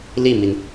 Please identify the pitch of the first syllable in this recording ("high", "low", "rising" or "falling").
falling